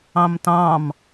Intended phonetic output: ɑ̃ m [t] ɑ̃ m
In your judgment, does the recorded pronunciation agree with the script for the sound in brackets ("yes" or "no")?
yes